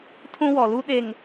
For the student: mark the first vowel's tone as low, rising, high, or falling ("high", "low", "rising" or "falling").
high